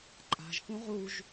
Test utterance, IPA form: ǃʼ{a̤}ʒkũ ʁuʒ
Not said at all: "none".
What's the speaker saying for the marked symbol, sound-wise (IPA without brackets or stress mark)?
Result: a̤